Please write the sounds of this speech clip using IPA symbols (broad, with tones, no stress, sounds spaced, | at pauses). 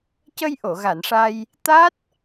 c ə˧ j ʔ o˨˩˨ ɣ a˨˩˨ n ʂ a˧ j | t̪ a˦˥ t̚